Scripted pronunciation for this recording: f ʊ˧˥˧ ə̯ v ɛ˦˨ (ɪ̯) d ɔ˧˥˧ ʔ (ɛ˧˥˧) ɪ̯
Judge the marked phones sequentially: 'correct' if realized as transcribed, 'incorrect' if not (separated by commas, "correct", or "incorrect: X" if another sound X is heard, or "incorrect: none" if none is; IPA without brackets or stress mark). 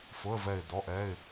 correct, correct